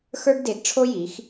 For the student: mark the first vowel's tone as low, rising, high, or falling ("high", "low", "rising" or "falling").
high